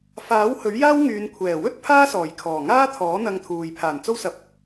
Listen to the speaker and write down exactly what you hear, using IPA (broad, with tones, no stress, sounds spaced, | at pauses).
f aː˨˥ w h ɵ˨˥ ɥ j aː˥ w ŋ yː˨˧ n kʷʰ ɛː˨˩ w ɵ˥ t̚ pʰ aː˥ s ɔː˨˩ j kʰ ɔː˨˩ ŋ aː˥ t̪ʰ ɔː˨˥ n̪ ɐ˧ ŋ t̪ʰ uː˨ j pʰ aː˨˩ n t͡s o˥ w s ɐ˧ p̚